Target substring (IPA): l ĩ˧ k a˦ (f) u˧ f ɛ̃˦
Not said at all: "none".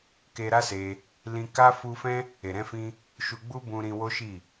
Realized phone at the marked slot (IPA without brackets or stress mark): f